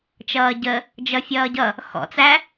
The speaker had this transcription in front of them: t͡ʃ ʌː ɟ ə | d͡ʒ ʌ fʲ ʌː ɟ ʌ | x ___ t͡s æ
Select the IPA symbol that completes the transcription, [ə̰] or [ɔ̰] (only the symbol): ɔ̰